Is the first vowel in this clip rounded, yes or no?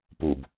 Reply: yes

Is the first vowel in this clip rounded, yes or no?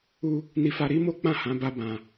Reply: yes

